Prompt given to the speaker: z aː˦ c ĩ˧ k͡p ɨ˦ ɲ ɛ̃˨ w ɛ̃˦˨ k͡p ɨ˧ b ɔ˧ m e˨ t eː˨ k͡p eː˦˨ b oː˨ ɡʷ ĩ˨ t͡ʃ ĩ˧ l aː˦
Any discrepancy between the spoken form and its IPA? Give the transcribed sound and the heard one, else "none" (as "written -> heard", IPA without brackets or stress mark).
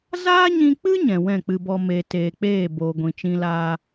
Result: c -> ɲ